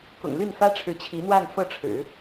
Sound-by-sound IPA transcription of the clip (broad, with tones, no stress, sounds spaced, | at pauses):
k ʊ̰˨˩ ŋ l y˥˩ n f ä˥ ʈ͡ʂʰ ɻ̩˧˥ t͡ɕʰ i˧˥ n̪ w a˥˧ n f ɤ˥˩ ʈ͡ʂʰ ɻ̩˨˩˦